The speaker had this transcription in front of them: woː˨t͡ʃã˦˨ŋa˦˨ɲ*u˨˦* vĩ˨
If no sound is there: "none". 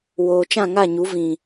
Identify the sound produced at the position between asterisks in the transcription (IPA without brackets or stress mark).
u˨˦